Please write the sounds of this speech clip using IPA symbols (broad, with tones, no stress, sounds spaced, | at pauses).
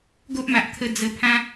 ɡ o˦ ʔ m a˨ ʔ t̪ʰ ə˦ d͡z ə˧ pʰ ã˦